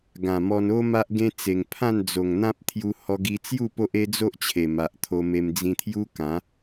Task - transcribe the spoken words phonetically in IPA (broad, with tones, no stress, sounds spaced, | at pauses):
ɡ ã˨˩ m ɔ˧ n o˦ m a˦ ʔ ɡ ẽ˦ t͡s e˨˩ ŋ pʰ ã˥˧ n d͡z o˨˩ ŋ n̪ ã˦ p̚ t̪ʰ j u˧ h ɔ˧ ɡ i˧ t͡s j u˥˧ p o˦ ʔ e˦ d͡z o˦ ʔ t͡ɕʰ e˨˩ m a˨ ʔ t̪ʰ o˧ m e˧ m d͡z ĩ˧ t̪ʰ j u˦ k ã˨˦